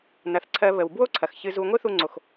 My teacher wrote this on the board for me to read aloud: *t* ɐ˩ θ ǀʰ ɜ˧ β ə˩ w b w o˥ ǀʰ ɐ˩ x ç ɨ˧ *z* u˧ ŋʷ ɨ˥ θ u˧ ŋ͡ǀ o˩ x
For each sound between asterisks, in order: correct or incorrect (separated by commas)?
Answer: incorrect, correct